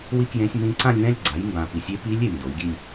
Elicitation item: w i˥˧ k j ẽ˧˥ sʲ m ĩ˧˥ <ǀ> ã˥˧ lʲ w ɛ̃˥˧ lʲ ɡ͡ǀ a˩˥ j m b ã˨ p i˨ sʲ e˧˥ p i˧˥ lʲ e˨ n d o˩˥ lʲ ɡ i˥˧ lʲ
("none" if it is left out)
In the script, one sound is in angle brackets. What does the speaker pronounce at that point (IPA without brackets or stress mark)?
ǀ